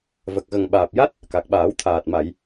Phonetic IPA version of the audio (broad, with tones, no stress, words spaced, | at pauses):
və˨˩k̚ɣə˨˩ŋ ɓaː˨˩p̚ja˦˥t̚ | ka˨˩k̚ɓaː˨˩˦w t̪ʰaː˨˩t̚ ma˨˩˨j